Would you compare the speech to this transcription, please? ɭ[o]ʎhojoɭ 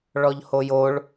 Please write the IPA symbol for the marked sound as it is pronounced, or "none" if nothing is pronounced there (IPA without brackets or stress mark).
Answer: ɔ